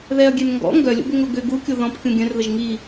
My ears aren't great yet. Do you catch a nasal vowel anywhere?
yes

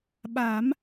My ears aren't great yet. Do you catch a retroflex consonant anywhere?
no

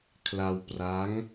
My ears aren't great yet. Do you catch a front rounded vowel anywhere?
no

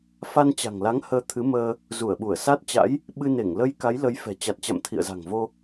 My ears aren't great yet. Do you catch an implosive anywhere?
yes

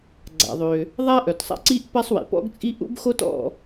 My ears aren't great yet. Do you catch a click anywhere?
yes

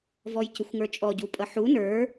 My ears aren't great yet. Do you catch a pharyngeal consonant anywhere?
yes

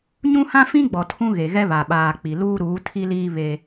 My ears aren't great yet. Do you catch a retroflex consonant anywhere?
no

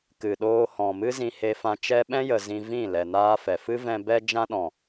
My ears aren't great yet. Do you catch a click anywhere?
no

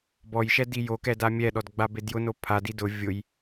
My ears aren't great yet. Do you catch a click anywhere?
no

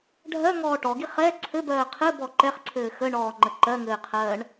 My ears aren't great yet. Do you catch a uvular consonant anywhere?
yes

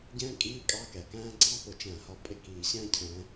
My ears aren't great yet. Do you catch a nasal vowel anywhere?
yes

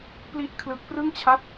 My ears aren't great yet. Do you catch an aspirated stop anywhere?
yes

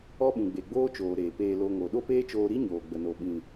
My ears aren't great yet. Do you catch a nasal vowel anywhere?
yes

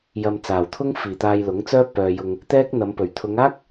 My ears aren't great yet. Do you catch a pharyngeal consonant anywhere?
no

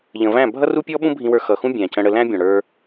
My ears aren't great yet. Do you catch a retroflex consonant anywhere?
yes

